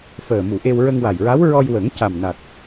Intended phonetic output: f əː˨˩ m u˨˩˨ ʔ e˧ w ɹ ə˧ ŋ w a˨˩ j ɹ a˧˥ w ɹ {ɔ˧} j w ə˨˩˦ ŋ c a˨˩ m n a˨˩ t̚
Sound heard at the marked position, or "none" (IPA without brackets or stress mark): ɔ˧